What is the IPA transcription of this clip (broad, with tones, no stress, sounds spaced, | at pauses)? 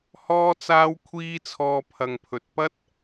h ɔː˥ t͡s aː˥ w kʷʰ iː˥ t͡sʰ ɔː˧ pʰ ɐ˨ ŋ pʰ ɵ˨ t̚ p ɐ˥ t̚